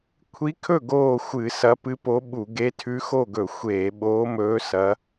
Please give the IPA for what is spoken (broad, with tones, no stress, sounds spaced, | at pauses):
kʷʰ i˧˥ kʰ ɵ˥˨ ɡ oː˥˨ xʷ ɨ˧˩˧ s ɐ˧˥ p ɨ˧˥ p o˧˥ ɓ u˧˩˧ ɡ e˧˥ tʰ ʉ˧˥ x o˥˨ ɡ ɵ˧˩˧ xʷ eː˧˩˧ ɓ oː˧˥ m ɵː˧˥ s ɐ˧˥